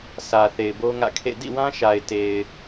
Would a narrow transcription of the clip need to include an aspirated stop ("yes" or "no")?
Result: yes